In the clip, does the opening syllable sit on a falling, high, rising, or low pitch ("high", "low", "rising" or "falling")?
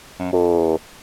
low